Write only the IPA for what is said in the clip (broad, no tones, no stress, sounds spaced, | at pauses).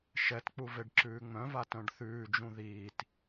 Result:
ʃ ɛ t k͡p u v e ɖ ǁ ʉː ŋ͡m œ̃ v a t œ̃ ɖ θ ʉː d͡ʒ ũ ð iː t